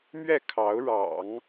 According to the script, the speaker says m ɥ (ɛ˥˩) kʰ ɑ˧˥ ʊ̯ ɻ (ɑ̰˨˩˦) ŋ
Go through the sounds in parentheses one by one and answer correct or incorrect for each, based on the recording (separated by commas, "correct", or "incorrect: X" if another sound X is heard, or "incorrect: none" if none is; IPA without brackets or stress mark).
correct, correct